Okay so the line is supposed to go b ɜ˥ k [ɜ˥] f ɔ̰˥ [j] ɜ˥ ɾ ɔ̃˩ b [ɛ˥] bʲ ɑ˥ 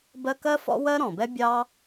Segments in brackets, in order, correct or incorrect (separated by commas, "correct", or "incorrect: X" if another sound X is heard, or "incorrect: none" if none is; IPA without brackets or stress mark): correct, incorrect: w, correct